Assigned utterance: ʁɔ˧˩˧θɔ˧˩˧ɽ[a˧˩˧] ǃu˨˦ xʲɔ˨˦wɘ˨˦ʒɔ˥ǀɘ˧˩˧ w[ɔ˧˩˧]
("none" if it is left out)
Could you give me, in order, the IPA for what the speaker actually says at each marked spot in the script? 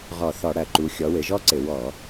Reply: ɐ˧˩˧, ɔ˧˩˧

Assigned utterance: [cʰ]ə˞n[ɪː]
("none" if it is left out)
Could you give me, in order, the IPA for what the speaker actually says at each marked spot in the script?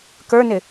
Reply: k, ɪ

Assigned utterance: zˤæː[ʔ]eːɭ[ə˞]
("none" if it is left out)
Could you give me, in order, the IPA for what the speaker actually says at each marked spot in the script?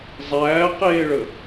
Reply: q, ə

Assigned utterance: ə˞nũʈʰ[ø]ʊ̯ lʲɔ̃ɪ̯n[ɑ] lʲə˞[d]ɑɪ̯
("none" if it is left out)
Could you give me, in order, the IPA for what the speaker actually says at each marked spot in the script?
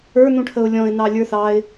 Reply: ə, ɑ, θ

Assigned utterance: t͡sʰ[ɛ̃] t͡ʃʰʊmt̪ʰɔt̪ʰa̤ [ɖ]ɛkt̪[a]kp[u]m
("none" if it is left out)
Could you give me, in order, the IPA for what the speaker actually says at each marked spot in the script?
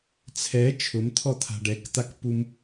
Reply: ɛ, ɖ, a, u

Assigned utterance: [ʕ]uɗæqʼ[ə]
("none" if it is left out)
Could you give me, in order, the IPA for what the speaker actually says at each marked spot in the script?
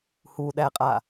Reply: h, a

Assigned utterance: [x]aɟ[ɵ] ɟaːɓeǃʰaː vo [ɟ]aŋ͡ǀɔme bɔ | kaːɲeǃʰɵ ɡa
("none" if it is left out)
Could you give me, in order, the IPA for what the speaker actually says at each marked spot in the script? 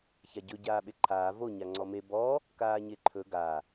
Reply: ç, ɵ, ɲ

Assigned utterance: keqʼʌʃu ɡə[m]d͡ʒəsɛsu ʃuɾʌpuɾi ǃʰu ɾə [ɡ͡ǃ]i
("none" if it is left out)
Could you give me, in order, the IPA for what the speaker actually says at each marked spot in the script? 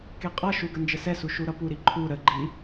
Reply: n, ɡ͡ǃ

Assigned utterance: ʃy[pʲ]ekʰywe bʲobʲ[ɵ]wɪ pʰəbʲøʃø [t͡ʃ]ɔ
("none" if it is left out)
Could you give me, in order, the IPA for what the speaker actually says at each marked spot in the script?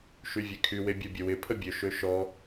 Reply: vʲ, ə, ʃ

